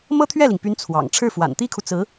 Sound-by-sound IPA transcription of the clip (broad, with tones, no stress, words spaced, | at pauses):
mɤ˥t̪ʰɥɛ˥˩li˩ŋpy˧˥n t͡sʰwɑ̰˨˩ŋ ʈ͡ʂʰɻ̩˥˩fwa̰˨˩nt̪i˥kʰu˨ t͡sɹ̩˧˥